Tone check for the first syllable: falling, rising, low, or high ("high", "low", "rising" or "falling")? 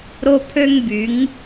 high